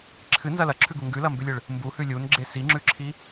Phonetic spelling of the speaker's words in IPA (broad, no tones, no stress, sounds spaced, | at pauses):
ǁʰ ɨ n z ɐ l ɐ ǁʰ ʉ ɡ u ŋ ɡ ʉ l ɐ m b ʉ lʲ ɨ ɭ | m b u h ʉ lʲ u n ɡ͡ǁ e s i ŋ͡ǁ ʉ ǁʰ i